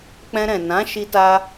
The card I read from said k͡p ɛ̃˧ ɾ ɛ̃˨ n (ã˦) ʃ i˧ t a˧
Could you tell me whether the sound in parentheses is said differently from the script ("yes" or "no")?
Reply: yes